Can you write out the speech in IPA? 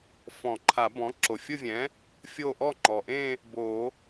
f ɔ̃˨˩˦ ǃʰ a˨˩˦ b ɔ̃˩˥ ǁ o˩ fʲ ʊ˥˧ vʲ ɛ̃˩˥ | fʲ o˥˧ ʔ ɔ˥˧ ŋ͡ǃ ɔ˩ ʔ ẽ˥˧ | b o˨˩˦

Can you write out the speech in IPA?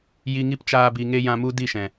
j i˧ ŋ i˦ p t͡ʃ aː˧ b i˨ ŋ e˦ j ã˧ m u˦ d i˦˨ ʃ ɛ̃˨

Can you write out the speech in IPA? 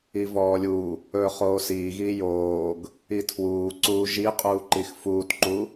i v ɔː lʲ u | ɵː χ oː s iː ɣ iː j oː ɡ | i tʰ w uː ǀ uː ʒ i qʼ uː ǃ i x f uː t ǃ u

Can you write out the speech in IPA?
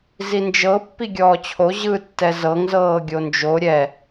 z i n d͡ʒ ɤ pː i ɡʲ ɔː t͡ɕʰ o ʑ ɯ tː ɛ z ɤ ŋ z ɤː ɡʲ o n d͡ʒ o ɾʲ ɛ

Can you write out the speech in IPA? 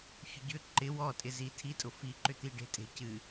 ç ʏ ɟ ʏ ǃ ɪ w ɔ tʼ ɪ z i tʰ i tʼ ʊ f i ǃ ʏ t̪ i ɖ e̤ tʼ e̤ c ɨ

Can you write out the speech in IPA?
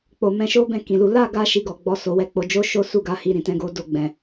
k͡p o˨ m ɛ̃˧ ʃ o˦ b ɛ̃˦˨ k ĩ˨ l u˨˦ l a˦˨ ɡ a˧ ʃ i˧ ɡ ɔ˨ ɡ͡b ɔ˨˦ s o˧ w ɛ˦ k͡p o˧ d͡ʒ o˦ ʃ o˦ s u˦˨ ɡ a˨˦ h i˧ ɾ ĩ˨ t ɛ̃˧ ɡ o˦ d o˧ ɡ͡b ɛ̃˨

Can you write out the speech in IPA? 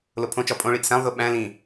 l o pʰ õ t͡ʃ ɒ pʼ õ ɭ i ʔ s æ̃ lˠ ð o ɓ æ̃ l ĩ

